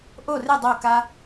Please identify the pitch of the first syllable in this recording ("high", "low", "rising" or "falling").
falling